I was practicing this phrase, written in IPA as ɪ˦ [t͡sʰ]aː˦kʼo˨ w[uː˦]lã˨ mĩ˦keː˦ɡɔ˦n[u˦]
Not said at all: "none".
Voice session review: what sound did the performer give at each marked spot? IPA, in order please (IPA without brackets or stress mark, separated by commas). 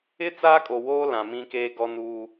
t͡s, oː˦, uː˦